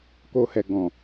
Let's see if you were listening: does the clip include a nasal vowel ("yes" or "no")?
yes